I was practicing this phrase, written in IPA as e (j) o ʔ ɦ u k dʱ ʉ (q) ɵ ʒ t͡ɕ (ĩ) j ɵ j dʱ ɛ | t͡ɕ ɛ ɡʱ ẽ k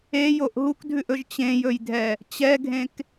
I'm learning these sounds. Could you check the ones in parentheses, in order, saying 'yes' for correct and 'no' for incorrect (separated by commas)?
yes, no, no